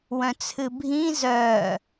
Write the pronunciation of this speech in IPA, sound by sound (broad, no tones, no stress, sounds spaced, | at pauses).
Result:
w œ̃ t͡sʰ ɨ bʱ ĩ z œː